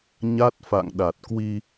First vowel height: low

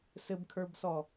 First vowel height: mid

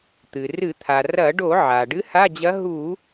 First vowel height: high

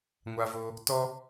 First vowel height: low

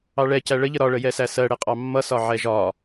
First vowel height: low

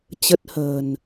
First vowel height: mid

